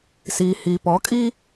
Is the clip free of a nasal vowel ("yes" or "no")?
yes